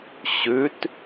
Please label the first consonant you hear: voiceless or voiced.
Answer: voiceless